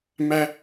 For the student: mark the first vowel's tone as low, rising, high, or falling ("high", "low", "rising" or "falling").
high